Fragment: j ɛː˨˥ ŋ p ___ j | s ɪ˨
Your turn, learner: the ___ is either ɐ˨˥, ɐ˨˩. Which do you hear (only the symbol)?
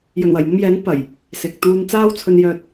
ɐ˨˩